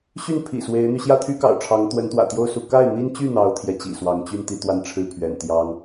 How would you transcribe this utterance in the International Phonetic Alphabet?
ɕy˥˩npʰḭ˨˩ swe˧˥ɪ̯n̪y˧ ɕjä˥˩t̪ʰy˥kɑ̰˨˩ʊ̯ ʈ͡ʂʰɑ˧˥ŋt̪wə˧˥nt̪wä̰˨˩t̪jo˥˧ʊ̯ su˥˧ ka˥˩ɪ̯n̪i˥nt͡ɕy˥˩ n̪ɑ˧˥ʊ̯ t̪ʰjɛ˧˥t͡ɕḭ˨˩swɑ˧˥ŋ t͡ɕy˥˧n t̪i˥˧t̪wa˥˧nʈ͡ʂʰɻ̩˥˩pʰɥɛ̰˨˩n t̪jɑ˥ŋ

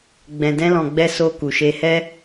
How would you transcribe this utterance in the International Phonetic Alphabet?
ɡ͡bɛ̃˨dɛ̃˧lɔ̃˨ɡ͡bɛ˧ so˧ku˨ʃe˧hɛ˦

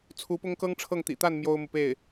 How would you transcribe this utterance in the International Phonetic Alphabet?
t͡sʰu˧˥pʊ˥ŋkɤ˥ŋ ʈ͡ʂʰɤ˥˩ŋt̪ḭ˨˩ t̪a˥˩n mjo˥ʊ̯mu˨ pe˥˩ɪ̯

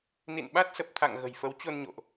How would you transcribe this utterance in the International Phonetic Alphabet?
nḭ˧˨nɓa˦˥t̚sə˨˩p̚t̪ʰa̰˧˨ŋ ɣə̤˨˩jfə˨˦wt͡ɕo˧nɲo̰˧˨ʔ

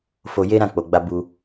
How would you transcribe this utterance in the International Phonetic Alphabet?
fo˧ je˦ ɾã˦˨k͡po˨ɡ͡ba˧ bu˦

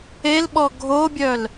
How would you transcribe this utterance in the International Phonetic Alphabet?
elɓɔ ɡʱobʲœl

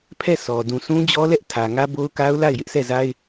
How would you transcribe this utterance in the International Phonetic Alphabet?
pʰɛ˦˨ sʰɔ˨ dũ˨sʰũ˦d͡ʑɔ˦lɛ˦ʔ tʰä˨ŋä˦bo˦ʊ̯ka˦ʊ̯ la˦˨ɪ̯jɪ˦ʔsʰɛ˦˨za˦ɪ̯

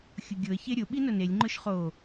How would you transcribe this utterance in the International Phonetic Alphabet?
xʲʊɡʲʊə̯ çeɾʲʊ ɓinʊnelʲ ŋ͡ǃʊʃχo

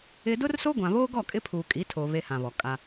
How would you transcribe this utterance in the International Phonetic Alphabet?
ɪ˦ dʊ˦rso˦ɡʷã˨βoː˦ ɡɔ˦˨kʼɪ˦pʰuː˨ kʼi˨˦tʰo˨ βe˦hã˨βɔ˨ kʼa˦

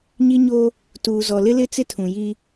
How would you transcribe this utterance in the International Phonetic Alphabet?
ɲi˦ɲo˦ | tuː˨zɔ˨lɪ˦lɪ˦ t͡sɪ˦tʰũ˨ ji˦

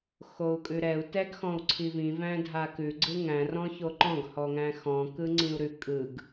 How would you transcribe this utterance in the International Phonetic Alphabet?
xou̯kʼʉɾɛu̯ tɛɡxɔ̃u̯ǀʰivĩ væ̃dʱakʉ ɡ͡ǀɯŋæ̃ rɔ̃çoǃɔ̃ɡ hɔŋæ̃xɔ̃ kɯŋ͡ǀĩu̯ɾʉ kʼɯɡ

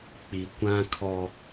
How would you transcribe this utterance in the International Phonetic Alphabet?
k͡pi˨kʷã˦kʰɔ˦

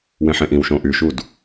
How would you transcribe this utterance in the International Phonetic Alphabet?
wẽħẽʔĩwʃõːʔ yʃud

